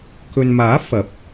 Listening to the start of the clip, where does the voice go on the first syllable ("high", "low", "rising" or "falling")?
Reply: low